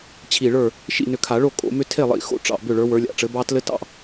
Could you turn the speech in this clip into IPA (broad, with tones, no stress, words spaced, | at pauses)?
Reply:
t͡ɕʰi˧˩ɭə˞˥˩ | ʃḭ˥˩nʏ˧˩kʰa˨˩˦ɭo˥˩ kʼo̰˨˩˦mʏ˥ tʰe˥˩lˠḭ˨˩˦ xo̰˥˩ ʈ͡ʂɑ̰˧˩ bʏ˥˩ɭə˞˨˥wə˞˨˥ lʲa̰˧˩ʈ͡ʂɘ˨˥bɑ˥ tlɘ˥tɑ̰˥˩